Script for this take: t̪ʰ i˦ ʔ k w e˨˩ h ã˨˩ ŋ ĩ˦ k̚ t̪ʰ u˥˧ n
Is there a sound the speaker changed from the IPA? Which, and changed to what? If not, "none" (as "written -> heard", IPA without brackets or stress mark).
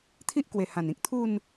ŋ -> n